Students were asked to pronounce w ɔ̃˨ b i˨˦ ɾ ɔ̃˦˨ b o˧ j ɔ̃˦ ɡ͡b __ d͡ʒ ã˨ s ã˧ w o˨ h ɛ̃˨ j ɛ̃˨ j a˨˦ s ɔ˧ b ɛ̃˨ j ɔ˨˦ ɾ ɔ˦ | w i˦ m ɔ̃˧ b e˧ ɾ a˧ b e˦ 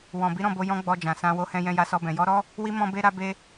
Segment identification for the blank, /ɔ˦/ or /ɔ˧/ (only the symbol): ɔ˧